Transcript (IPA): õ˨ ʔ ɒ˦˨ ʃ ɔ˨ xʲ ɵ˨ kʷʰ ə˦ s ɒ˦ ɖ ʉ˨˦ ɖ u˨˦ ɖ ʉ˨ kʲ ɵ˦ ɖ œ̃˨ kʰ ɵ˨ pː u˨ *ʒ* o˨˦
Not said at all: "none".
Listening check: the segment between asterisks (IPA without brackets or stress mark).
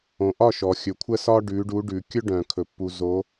z